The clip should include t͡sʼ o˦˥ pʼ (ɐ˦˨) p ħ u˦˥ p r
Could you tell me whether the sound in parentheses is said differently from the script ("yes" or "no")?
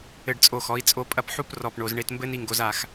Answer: no